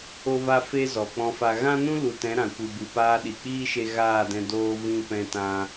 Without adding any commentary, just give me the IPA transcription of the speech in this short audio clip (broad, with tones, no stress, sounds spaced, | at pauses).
o˧ v a˧ f e˧ z ɔ˨ k͡p ɔ̃˧ f a˧ ɣ ã˦ n ũ˦ l u˨ t ɛ̃˨˦ ɾ ã˨ kʷ ɨ˨ b ɨ˨ p aː˧ ɗ i˨ k͡p iː˦ ʃ e˧ ɣ aː˦˨ d ɛ̃˧ d oː˧ v ĩ˧ p ɛ̃˧ t ã˧